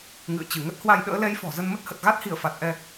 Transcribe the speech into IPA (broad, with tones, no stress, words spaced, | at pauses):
ŋɨ̰˧˨ə̯t͡ɕɨ˧˩ŋə˦˥t̚hwa˧j ɗə̰ː˧˥lɛ˨˦jfɔ̤˨˩ zə˧nmə˦˥t̚hə˨˩t̚ ɣa˦˥t̚hi˧˩ə̯fa˨˩t̚ ʔɛ˧